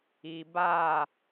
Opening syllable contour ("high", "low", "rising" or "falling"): low